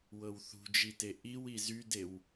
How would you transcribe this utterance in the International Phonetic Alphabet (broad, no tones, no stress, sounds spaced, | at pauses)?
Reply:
w ɤ w θ ṳ d͡ʒ i t e ʔ i w i z y d e w